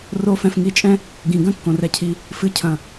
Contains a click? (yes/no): no